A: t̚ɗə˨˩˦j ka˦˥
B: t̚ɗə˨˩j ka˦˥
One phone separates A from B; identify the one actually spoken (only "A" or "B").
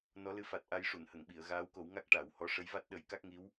A